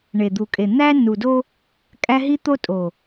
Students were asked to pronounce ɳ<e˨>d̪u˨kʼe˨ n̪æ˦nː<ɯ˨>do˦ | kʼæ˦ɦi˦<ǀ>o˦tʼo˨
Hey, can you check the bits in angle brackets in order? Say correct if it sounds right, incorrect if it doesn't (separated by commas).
correct, incorrect, incorrect